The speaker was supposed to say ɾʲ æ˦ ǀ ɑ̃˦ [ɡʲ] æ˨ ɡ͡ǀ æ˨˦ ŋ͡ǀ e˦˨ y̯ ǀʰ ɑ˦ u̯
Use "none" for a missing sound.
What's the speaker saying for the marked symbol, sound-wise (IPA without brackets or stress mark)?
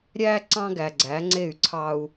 ɡ